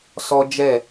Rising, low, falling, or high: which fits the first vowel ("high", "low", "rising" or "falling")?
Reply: high